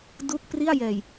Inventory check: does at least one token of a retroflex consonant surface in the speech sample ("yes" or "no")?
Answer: no